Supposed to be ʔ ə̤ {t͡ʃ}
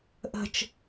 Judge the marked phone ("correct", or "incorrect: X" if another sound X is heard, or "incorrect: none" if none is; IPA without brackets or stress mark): correct